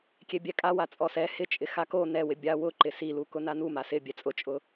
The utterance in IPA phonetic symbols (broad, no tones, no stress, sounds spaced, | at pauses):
kʲ e bʲ ɛ kʼ a w a t͡sʼ ɔ s ɛ h ɪ t͡ʃʼ ɪ x a k o n ɛ w ɪ bʲ a w ʊ ǃ ɪ s i l u k ʊ n a n u m a s ɪ bʲ ɛ t͡sʼ ʊ t͡ʃʼ ʊ